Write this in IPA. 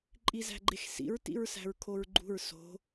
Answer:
ǃʼ i z æ̤ ɡ͡ǃ e x s ḭ ɹ t ḭ ɹ s æ̤ ɹ kʰ o ɹ ɡ͡ǃ ṳ ɹ s o̤

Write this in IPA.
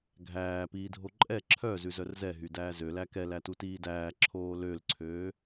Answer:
ɡʱ æː p iː dʱ o ǃʼ ɛ ǁʰ œ z ʉ z œ r z ɛ ɦ y d æː z ø l æ k ɛ l æ t u t iː d æː ǁʰ oː l ø l ǀʰ øː

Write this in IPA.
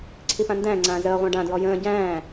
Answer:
ǀʰ i p ã n d æ̃ ŋ͡ǀ ãː z əː ʁʷ æ̃ ɖ ã d ɹ ɔ j ə̃ː ɟ æ̃ː

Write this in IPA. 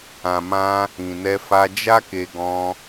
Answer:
ã˨ m ã˧ | ĩ˨ n ɛ˧ f a˧ d͡ʒ a˦ k e˧ ɡ ɔ̃˧

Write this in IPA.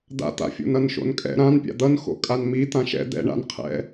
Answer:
d̪ a̰ t̪ a̰ fʲ o̰ n ʌ n ʃ o̰ n kʼ ɛ̰ ɾ ã n pʲ a̰ d̪ ʌ n x o̰ kʼ a n m i t̪ ã ʃ ɛ̰ d̪ ɛ̰ ɳ a̰ n qʰ ɛ̰

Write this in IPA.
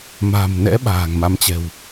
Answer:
m a̤˨˩ m n ɛ̰˧˥ ɓ a̤ː˨˩ ŋ m a˨˦ m t͡ɕ ɛ̤˨˩ w

